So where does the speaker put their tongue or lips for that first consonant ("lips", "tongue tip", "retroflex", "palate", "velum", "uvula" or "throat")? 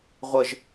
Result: uvula